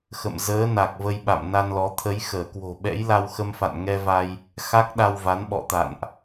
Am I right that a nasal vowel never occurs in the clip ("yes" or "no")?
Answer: yes